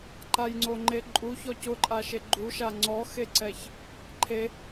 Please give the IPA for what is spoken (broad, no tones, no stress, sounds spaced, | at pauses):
ǃ a j ŋ͡ǀ o ŋ͡ǃ e ǃʼ u ç ɔ c ʊ ǃʼ a ʃ e ɡ͡ǃ u ʃ a ŋ͡ǀ ɔ x e ǀ ɛ ç | ǃʰ e